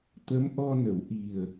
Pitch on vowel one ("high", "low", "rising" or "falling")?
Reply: rising